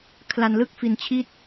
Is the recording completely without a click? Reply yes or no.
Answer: yes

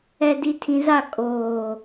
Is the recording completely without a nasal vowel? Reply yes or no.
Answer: no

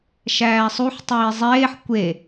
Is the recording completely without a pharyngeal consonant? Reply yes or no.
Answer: no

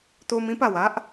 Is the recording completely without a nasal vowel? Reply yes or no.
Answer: no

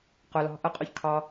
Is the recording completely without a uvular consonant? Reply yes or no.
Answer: no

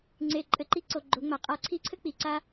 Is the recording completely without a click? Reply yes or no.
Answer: no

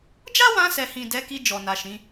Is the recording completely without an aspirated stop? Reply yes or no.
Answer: yes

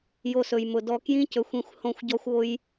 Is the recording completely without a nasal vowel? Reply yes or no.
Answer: no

